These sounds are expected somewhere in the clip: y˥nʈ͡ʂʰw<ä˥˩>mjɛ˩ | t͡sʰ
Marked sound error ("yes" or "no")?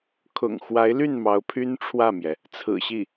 no